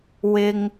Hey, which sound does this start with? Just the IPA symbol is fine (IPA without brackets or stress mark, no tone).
w